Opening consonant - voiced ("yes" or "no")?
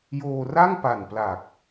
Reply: yes